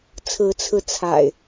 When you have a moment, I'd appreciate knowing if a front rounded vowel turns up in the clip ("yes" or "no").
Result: no